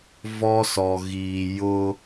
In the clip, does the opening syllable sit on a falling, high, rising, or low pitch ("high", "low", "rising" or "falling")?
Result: high